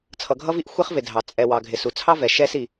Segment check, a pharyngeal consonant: absent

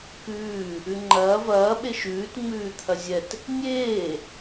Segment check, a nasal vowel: absent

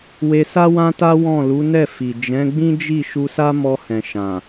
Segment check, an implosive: absent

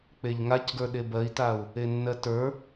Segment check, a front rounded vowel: absent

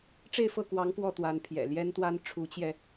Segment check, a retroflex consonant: present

